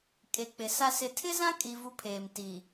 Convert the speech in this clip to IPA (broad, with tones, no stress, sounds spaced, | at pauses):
kʼ e˨ k͡p ɪ˨ s a˦ s ɪ˨ tʰ ɪ˦ z ã˦ kʼ i˦ v u˦ pʰ eː˨ m t i˨